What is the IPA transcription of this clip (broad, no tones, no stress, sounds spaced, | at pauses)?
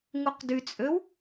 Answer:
ŋ u q d y t͡sʼ ø w